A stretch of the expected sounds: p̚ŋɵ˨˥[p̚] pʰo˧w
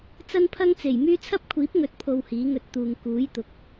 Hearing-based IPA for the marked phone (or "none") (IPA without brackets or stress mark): t̚